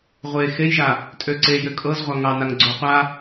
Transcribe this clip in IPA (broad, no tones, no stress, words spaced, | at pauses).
ʁʷe xejʒa | tʼøǀe jøkʼɤzʁʷa ŋɑ naŋɡ͡ǀoqʷa